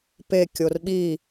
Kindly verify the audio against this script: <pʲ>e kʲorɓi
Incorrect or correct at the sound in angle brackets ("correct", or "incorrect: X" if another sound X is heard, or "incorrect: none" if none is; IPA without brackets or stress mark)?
incorrect: p